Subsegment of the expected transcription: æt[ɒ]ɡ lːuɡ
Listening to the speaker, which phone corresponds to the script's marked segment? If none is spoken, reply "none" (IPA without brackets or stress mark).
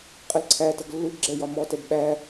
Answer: ʌ